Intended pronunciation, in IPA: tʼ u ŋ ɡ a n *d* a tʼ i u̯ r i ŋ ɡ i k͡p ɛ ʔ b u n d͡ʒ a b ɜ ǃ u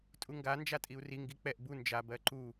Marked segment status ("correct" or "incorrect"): incorrect